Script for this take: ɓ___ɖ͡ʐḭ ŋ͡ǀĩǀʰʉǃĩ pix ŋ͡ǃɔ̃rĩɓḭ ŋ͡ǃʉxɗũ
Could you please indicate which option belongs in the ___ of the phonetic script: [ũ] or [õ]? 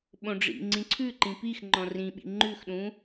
õ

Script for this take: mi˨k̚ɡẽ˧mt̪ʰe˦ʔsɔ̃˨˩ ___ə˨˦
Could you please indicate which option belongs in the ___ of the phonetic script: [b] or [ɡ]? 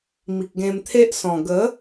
ɡ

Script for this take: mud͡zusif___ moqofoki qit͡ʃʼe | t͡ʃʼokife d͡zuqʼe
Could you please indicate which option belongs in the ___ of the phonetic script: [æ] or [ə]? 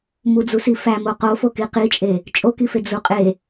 æ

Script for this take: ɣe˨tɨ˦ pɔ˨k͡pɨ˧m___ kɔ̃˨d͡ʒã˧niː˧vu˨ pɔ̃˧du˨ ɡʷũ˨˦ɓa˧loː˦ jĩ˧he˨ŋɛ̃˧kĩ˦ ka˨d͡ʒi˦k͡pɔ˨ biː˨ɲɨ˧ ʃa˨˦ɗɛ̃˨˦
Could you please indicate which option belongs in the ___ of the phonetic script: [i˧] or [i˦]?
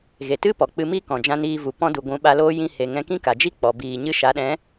i˦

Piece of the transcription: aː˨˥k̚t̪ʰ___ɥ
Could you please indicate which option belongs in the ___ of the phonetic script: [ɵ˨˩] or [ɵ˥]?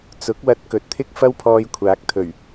ɵ˨˩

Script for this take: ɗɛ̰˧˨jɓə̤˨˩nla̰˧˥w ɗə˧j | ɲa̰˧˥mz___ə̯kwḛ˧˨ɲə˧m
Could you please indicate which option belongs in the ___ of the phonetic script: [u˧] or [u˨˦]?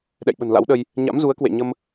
u˨˦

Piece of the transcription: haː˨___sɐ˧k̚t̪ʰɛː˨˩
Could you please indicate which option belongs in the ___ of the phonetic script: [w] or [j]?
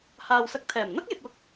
w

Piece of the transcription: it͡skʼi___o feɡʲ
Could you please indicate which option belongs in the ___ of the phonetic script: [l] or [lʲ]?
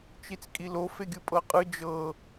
l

